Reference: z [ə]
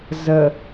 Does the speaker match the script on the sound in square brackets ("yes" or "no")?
yes